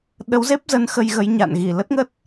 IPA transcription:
ɗ ə˨˦ w z e˦˥ p̚ z ə˨˦ n x ə˧ j ɣ ə˨˦ j ɲ a̰˧˨ n ɣ i˧˩ l ə˦˥ t̚ ŋ ə˦˥ t̚

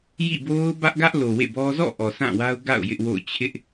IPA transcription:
j ḭ˦˨ b o˦ ʊ̯ b ä˦ ʔ ɡ ä˦ ʔ l o˨ w ḛ˦˨ b ɔ˦ z ɔ̰˦˨ ʔ ɔ˨ s ã˦˨ w a˦ ʊ̯ ɡ a̰˦˨ ʊ̯ j ɪ˦ ʔ w o̰˦˨ ʊ̯ t͡ɕʰ ɪ˦ ʔ

